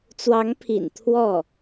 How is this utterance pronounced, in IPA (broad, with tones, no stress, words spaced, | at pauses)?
t͡swɑ˧˥ŋpʰḭ˨˩n t̪ʰwɔ˥˩